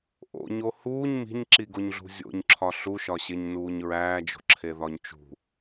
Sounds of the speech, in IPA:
ʔo̰ɲo huːɲ mi̤ɲǁiɡoɲɮṳ zʲo̰ɲǁʰɒ ɬuʃɒɕeɲnuːɲ ɹæːd͡ʒo̤ǁʰeðɒɲ t͡ʃṳ

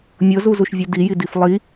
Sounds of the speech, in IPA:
mʲɤzuzuʃvʲu dijidif lˠi

